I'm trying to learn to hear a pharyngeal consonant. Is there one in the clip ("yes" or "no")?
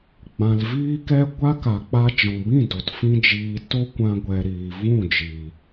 no